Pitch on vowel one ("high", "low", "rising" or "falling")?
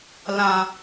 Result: high